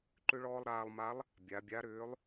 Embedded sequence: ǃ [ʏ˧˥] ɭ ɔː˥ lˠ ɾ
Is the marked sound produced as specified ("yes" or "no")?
no